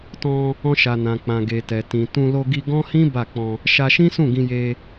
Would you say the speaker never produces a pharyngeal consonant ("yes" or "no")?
yes